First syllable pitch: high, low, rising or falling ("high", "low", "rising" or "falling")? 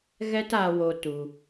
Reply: high